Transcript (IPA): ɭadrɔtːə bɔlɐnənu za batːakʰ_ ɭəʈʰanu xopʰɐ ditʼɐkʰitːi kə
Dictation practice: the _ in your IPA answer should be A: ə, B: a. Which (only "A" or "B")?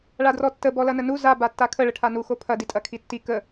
A